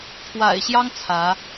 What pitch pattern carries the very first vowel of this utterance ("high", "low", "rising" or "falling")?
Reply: low